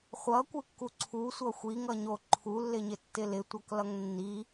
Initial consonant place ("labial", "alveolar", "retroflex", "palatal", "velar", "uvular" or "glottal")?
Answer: uvular